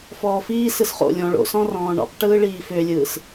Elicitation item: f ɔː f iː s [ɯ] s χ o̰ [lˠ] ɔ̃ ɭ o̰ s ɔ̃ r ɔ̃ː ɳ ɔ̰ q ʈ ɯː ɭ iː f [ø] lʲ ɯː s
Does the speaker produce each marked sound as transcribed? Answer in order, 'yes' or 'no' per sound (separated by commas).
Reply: yes, no, yes